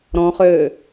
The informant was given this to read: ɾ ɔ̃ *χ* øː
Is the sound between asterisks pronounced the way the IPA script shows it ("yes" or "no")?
yes